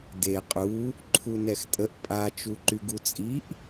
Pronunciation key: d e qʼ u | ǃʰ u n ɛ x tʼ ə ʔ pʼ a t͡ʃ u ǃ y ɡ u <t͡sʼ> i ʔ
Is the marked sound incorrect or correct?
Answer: correct